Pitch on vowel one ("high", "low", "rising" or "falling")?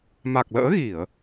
low